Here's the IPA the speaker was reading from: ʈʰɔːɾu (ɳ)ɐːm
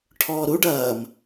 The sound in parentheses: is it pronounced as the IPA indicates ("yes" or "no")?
no